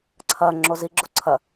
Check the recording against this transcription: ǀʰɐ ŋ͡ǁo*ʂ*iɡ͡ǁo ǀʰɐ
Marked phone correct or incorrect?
incorrect: z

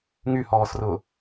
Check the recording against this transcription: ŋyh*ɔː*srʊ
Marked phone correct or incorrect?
correct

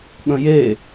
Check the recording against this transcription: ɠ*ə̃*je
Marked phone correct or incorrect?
correct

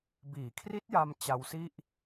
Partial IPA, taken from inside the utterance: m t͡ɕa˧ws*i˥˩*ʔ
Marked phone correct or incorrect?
correct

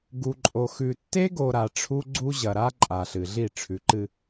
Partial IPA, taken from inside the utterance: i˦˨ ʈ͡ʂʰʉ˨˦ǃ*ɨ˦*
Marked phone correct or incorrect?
correct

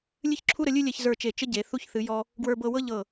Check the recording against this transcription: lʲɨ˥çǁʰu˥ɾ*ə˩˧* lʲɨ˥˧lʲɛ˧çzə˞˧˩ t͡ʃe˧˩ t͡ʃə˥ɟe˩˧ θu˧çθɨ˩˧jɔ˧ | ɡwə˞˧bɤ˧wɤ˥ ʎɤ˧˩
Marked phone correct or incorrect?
correct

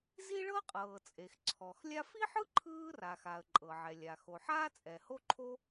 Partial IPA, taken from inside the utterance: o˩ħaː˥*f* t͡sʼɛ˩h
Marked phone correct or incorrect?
incorrect: none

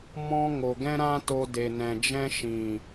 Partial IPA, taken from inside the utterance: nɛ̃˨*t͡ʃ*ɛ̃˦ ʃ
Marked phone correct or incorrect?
incorrect: d͡ʒ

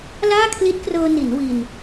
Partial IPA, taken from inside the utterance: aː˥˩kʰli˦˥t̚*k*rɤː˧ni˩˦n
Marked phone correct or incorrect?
correct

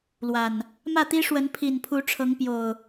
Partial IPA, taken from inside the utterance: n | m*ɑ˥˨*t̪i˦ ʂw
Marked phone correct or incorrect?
incorrect: ä˥˨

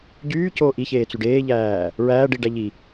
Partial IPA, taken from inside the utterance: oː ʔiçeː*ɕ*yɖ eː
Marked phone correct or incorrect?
incorrect: t͡s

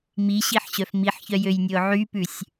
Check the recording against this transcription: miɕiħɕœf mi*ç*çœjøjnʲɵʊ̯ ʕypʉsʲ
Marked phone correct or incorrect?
incorrect: ħ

